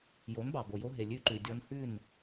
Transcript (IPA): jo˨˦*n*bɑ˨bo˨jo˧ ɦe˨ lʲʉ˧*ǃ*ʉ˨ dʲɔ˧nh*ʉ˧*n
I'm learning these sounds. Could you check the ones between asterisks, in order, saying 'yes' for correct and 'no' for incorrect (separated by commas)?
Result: yes, yes, no